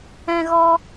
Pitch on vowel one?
high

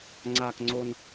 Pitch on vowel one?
high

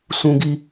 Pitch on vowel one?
high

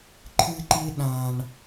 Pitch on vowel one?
high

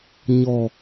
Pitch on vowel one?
low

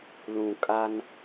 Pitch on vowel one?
low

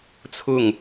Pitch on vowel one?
falling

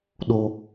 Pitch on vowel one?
high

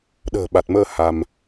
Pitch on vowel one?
low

